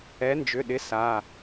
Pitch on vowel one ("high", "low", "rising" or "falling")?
rising